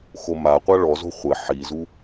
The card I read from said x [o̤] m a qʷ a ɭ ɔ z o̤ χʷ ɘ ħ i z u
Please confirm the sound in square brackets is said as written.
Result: no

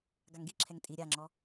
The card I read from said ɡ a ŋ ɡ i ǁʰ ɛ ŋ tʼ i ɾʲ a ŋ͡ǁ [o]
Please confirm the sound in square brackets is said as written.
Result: no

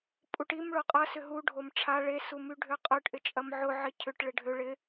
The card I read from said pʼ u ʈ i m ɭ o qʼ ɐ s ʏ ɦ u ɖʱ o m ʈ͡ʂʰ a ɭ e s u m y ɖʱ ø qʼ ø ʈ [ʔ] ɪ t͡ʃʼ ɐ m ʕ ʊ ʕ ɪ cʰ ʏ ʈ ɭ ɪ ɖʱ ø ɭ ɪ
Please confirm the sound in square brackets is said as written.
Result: yes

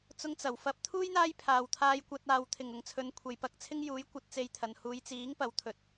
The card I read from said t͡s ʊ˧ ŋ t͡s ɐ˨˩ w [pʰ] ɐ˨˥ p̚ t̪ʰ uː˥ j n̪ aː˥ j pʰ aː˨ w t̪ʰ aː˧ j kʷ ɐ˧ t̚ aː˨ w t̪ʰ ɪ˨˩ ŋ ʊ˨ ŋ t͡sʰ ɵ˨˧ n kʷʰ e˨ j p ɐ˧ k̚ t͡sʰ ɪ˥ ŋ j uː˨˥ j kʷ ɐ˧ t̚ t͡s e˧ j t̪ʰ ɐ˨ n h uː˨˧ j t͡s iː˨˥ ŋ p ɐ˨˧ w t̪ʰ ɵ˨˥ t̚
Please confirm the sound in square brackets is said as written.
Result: no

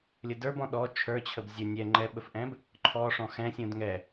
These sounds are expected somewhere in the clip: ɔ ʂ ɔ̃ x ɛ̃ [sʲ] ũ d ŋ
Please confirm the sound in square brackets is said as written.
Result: yes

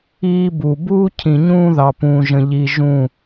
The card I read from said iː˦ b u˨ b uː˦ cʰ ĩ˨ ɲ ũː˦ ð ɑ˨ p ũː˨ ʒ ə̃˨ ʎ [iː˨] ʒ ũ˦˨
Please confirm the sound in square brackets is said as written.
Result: no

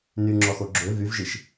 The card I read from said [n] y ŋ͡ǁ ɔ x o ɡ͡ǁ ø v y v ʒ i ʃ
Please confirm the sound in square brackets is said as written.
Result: yes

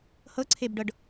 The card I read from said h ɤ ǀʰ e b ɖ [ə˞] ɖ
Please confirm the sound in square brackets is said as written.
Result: no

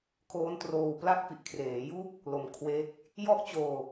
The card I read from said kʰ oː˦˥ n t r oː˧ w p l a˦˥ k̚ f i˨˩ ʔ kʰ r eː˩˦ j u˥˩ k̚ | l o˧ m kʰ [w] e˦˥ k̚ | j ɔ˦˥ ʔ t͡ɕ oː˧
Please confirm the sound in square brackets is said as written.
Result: yes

